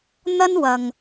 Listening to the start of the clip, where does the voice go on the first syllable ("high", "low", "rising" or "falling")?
high